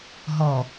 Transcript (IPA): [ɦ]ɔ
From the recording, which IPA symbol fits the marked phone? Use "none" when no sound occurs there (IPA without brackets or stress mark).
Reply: ɦ